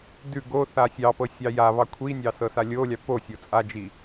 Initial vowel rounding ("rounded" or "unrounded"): rounded